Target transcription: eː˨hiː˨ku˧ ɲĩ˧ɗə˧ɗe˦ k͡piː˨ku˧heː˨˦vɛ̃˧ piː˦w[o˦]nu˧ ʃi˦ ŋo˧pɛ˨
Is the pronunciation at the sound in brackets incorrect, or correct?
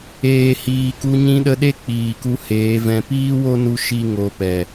correct